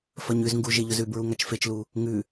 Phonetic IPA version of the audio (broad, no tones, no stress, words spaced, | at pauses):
fɐɲʉzŋɡu ʒeʎɵzʉbɹu ŋat͡ʃfet͡ʃlu | ŋʉ